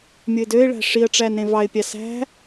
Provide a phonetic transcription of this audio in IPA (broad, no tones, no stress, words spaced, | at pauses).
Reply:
mʲoɪ̯døɪ̯ɭæ̤ ʂiə̯ʈ͡ʂæn ɾẽvɑɪ̯pʲɑ sæ̤